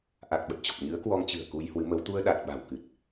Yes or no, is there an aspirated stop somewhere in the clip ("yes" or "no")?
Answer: no